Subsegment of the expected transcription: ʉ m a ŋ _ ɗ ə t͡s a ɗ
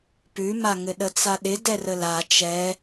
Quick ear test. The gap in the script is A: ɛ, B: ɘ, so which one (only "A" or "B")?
B